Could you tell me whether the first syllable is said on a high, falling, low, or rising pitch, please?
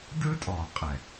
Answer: high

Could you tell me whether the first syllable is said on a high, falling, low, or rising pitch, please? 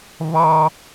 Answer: high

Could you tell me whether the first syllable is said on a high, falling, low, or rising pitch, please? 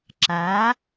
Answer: rising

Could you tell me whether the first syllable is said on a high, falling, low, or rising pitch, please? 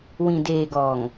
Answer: low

